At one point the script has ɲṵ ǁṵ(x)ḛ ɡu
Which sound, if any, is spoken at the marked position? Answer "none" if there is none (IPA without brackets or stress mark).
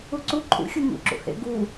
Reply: h